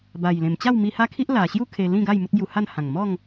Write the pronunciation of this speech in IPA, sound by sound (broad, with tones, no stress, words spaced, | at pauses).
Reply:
ba˨˩jlẽ˨˩m t͡ɕa˥˧wmi˧ha˦kʰi˦ʔ la˨˩ɕju˦ kʰe˧lĩ˥˧ɡa˥˧j mu˦t̚bju˧ha˥˧n hã˨˩ŋmɔ˥˧ŋ